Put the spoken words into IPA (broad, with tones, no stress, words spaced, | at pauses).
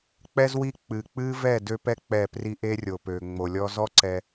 k͡pɛ˦z wi˦ k͡pɨ˨ k͡pɨ˦ vɛ˦˨dø˦pɛ˦ k͡pɛ˦˨pri˦ ʔe˦rʲo˨pø˨ ŋ͡mo˨lʲɔ˦ zɔ˦ ǀɛ˦